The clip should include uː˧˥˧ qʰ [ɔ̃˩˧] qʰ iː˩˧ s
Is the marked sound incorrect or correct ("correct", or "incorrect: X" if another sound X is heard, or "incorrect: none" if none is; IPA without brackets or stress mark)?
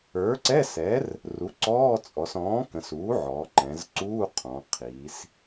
correct